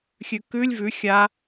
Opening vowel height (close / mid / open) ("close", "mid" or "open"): close